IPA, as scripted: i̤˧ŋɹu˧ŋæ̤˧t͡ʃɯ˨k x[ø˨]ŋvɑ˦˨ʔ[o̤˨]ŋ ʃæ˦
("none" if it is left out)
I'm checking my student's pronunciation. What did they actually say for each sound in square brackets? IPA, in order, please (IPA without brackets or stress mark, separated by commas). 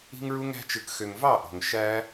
ø˨, o̤˨